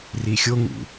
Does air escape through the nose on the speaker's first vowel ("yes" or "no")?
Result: no